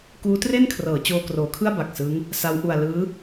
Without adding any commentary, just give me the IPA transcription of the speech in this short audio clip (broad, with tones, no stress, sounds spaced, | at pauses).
k uː˦˥ t r e˥˩ n kʰ r ɤː˩˦ t͡ɕ oː˧ k r oː˩˦ kʰ ɯ˥˩ a̯ b a˨˩ k̚ s ɯ˦˥ ŋ | s a˦˥ w ʔ u˧ a̯ l ɯː˦˥